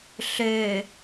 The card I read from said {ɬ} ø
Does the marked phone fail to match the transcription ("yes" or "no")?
no